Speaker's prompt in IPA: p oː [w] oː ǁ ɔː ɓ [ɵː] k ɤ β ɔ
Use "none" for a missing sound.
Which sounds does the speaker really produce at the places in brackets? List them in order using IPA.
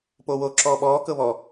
w, ɔː

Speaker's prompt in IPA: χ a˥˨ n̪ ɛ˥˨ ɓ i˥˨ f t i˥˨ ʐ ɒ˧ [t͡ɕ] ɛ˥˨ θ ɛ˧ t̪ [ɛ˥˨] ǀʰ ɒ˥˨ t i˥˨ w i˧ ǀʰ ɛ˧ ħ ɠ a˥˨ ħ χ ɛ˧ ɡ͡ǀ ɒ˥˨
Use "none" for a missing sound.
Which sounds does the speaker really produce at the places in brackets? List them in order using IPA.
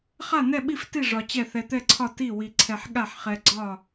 t͡ɕ, ɛ˥˨

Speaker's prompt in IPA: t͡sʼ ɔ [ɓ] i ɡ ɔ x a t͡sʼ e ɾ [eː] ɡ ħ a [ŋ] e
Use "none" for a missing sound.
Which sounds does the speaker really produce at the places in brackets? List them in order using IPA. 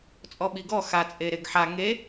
ɓ, e, ŋ

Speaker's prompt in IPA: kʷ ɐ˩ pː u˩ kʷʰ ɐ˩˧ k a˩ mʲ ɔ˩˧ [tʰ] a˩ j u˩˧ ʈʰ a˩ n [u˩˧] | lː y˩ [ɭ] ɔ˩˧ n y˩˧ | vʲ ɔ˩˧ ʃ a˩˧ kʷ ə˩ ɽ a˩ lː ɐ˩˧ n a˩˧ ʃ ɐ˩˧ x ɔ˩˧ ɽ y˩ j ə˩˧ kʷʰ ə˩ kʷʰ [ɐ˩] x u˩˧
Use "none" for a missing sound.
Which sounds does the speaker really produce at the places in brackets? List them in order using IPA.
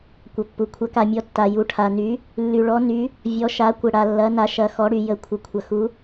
tː, y˩˧, ɭ, ɐ˩

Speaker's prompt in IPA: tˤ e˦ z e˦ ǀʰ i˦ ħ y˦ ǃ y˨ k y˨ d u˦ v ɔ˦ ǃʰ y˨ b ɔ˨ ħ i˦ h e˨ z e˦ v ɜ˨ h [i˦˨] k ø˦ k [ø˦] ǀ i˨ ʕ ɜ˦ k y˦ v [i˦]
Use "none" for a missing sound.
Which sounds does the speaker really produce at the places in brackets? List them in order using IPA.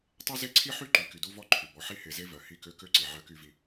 i˦˨, ø˦, i˦

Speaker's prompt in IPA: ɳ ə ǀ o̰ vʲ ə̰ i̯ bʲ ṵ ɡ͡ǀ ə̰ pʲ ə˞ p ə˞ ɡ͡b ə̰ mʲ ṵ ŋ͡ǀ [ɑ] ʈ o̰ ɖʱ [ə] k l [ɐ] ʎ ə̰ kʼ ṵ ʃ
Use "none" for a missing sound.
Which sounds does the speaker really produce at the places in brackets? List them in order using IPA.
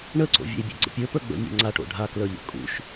a, a, ə˞

